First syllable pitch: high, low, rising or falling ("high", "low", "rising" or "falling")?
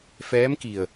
rising